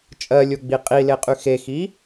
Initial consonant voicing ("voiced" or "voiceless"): voiceless